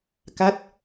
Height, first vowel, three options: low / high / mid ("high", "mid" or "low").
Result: low